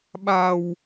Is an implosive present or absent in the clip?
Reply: present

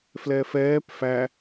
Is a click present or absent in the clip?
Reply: absent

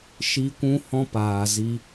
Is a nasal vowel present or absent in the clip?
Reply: present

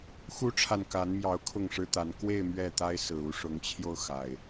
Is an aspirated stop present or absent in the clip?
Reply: present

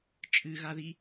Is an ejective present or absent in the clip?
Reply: present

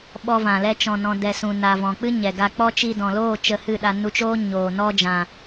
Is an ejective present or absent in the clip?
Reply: absent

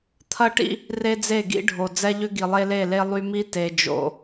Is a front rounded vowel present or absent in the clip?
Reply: present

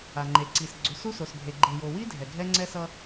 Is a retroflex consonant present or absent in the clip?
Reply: absent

